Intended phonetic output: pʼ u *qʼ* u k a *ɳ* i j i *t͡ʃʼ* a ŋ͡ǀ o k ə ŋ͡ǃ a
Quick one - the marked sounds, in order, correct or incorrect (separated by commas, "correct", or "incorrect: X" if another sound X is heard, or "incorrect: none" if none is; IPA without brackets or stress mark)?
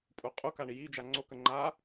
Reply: correct, correct, incorrect: d͡ʒ